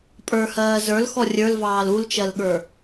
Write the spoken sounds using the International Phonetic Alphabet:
pʼ ə˞ h ɜː z ə˞ l x ɔ rʲ ə˞ l v ɑː l u l t͡ʃ ɜ l ɠ ə˞

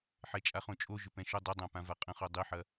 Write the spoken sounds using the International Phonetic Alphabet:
ħ ɛ t͡ʃʼ a χ õ t͡ʃʼ o ʒ ʏ p ɛ̃ ʃ ʊ dˤ i dˤ ã p ã v a qʼ ə̃ χ o dˤ i ħ ɐ

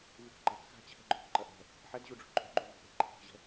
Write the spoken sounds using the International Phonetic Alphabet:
v y k ɡ͡ǃ a k x a̤ t͡ɕʰ ɛ̤ ɡ͡ǃ o̤ k ǃ ɐ ʔ ɛ̤ | ħ ɛ d ʑ u ɖ͡ʐ ṳ ǃʼ o̤ ɡ͡ǃ u v o̤ ʔ e̤ ǃʰ ɛ̤ k ʑ ɛ̤

